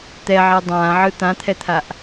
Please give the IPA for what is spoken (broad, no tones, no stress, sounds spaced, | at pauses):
t̪ ɛ ʕ ɛ dˤ ãː ʕ ɯ t̪ ã t̪ʰ ɛ t̪ʰ a ʔ